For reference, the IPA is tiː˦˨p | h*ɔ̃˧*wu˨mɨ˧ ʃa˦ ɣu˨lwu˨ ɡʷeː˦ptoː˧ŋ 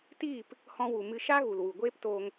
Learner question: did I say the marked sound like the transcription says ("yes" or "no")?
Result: yes